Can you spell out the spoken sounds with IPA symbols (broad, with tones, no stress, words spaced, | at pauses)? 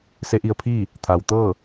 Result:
se˧˥ʔi˧ə̯pʰiː˥˨ | t̪ʰa˩w t̪ɤː˥˨